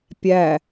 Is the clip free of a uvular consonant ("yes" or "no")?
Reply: yes